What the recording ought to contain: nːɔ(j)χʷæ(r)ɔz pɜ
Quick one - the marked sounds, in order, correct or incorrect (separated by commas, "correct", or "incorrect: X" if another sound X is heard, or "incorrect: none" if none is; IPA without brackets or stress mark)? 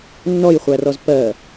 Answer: correct, correct